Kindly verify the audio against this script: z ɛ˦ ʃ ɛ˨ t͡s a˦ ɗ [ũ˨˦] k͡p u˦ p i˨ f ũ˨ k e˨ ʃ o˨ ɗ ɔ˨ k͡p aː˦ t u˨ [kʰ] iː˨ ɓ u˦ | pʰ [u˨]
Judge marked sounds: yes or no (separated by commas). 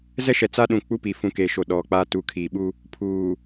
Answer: no, yes, no